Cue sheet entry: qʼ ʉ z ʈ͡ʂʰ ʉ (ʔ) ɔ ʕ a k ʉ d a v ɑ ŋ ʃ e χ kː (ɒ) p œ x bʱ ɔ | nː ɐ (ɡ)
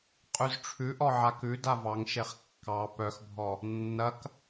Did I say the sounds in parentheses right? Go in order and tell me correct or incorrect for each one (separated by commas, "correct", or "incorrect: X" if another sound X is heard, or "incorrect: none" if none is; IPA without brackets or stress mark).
correct, incorrect: ɑ, incorrect: k